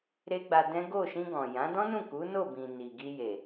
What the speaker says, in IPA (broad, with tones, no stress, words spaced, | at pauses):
ɾe˦ɡ͡ba˧ dɛ̃˦ ɡo˦˨ ʃĩ˧ɡɔ̃˨jã˨˦ dɔ̃˦nũ˦˨ku˨˦ no˦˨ bĩ˨ni˨ ɡi˧je˨